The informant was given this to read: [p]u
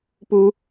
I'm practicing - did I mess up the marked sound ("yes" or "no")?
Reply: no